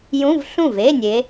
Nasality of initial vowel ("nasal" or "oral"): nasal